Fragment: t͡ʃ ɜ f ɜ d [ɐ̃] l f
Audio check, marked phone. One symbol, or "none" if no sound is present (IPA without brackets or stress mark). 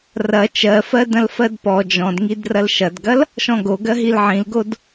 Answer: ɐ̃